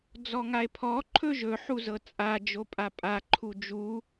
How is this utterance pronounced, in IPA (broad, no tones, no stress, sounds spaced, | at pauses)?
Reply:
d͡z ɔ ŋ a e̯ pʰ ɔ ǃʰ ɵ ʒ ɵ ħ u z ɤ t͡sʼ a d͡ʒ o pʼ a pʼ a ǃʰ u d͡ʒ u